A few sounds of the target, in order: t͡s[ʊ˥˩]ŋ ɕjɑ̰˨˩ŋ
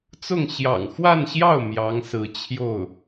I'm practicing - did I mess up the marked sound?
no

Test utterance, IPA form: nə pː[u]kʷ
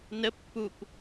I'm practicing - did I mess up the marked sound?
no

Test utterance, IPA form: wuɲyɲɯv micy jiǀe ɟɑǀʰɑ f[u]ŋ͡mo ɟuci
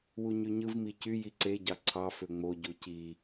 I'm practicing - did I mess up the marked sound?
yes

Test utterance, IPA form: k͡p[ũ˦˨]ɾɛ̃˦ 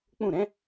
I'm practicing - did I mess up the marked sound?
no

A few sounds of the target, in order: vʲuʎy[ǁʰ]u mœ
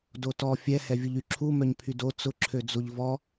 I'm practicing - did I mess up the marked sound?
no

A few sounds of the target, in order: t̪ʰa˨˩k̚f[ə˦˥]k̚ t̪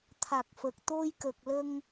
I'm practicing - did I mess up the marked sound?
yes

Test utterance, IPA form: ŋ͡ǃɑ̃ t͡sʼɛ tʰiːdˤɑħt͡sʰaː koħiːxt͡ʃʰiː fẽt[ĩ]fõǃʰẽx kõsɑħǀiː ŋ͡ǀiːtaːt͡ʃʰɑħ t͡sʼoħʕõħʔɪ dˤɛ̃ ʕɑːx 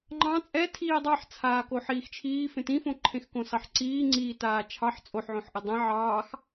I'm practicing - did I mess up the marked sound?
no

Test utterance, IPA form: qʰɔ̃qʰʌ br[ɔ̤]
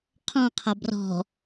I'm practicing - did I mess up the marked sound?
no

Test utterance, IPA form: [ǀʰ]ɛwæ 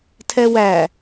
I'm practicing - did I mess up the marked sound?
yes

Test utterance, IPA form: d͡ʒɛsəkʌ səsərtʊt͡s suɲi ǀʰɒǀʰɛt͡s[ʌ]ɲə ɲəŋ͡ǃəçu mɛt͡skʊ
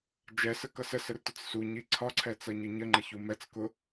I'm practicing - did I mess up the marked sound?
no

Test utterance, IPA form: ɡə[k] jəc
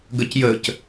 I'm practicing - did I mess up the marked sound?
yes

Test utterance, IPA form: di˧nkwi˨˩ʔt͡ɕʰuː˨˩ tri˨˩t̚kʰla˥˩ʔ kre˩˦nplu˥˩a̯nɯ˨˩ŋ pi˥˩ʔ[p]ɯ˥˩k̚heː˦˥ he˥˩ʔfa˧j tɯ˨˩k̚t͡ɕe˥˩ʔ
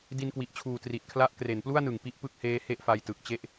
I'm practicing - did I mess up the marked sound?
no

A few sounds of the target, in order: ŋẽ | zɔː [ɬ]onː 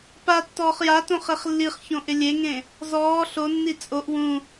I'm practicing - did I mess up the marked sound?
no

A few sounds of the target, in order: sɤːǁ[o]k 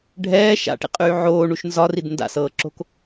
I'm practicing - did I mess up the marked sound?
yes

